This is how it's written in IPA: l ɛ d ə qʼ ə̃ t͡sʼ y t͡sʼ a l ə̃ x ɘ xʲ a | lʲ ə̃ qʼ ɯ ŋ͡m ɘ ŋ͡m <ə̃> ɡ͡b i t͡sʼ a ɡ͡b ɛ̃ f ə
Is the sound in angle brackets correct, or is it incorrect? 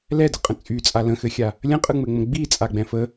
correct